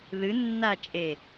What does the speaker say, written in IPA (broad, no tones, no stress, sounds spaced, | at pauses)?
ð ɨ nː a t͡ʃʼ e